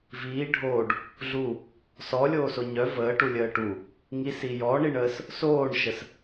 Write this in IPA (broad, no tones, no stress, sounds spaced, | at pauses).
v iː ɖʱ oː ɖ | ɮ u | s ɔ lʲ oː s o ɲ œ v əː ʈ u lʲ əː ʈ u | ŋ i s i j ɔ ɳ i ɳ əː s | s oː ɳ ʃ ə s